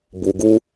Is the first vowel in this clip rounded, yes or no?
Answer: yes